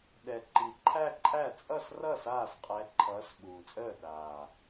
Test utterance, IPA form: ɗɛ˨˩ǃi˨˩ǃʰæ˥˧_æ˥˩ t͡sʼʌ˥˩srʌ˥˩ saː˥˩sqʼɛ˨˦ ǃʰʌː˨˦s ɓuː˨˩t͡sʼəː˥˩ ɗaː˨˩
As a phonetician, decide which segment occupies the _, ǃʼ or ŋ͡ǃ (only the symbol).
ǃʼ